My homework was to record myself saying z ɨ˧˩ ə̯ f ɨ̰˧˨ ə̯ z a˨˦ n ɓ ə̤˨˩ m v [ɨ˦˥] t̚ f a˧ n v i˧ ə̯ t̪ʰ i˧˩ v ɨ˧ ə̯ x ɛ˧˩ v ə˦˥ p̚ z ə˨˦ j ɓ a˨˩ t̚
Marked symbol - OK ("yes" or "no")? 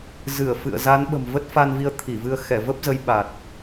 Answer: no